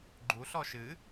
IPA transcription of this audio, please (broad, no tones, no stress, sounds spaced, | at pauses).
ɡ͡ǃ u ɬ ɔ ʃ ɨ